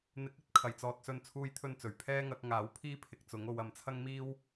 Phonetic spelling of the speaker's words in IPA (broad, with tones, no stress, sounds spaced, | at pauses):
n̪ ɪ˨˥ k̚ ɵ˨˥ t̚ kʰ ɐ˨˩ j t͡s ɔː˨ t̚ s ɵ˧ n t͡sʰ uː˥ j t̪ʰ ɵ˥ n t͡s ɵ˨˩ ɥ pʰ ɛː˥ ŋ ɐ˨˥ k̚ ŋ aː˨˥ w pʰ iː˥ pʰ ɪ˨ k̚ t͡s ʊ˨˥ ŋ o˨˧ w ɐ˨ m t͡sʰ ɐ˥ ŋ m iː˥ w